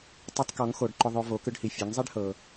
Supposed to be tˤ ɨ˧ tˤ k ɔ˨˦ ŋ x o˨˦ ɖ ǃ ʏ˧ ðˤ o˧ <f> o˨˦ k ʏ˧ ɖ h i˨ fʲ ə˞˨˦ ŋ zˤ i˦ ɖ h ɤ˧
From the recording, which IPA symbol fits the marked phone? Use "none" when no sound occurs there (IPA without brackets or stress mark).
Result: v